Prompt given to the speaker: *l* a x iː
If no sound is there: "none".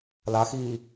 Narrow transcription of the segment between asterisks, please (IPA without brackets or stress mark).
l